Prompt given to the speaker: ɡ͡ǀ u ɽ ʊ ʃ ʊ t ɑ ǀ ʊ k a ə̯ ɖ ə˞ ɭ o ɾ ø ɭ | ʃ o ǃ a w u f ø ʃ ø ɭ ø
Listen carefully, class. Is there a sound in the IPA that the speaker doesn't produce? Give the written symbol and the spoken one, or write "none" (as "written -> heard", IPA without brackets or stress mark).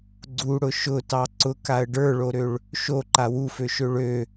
none